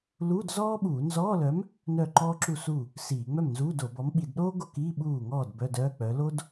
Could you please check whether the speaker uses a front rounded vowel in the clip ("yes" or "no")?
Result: yes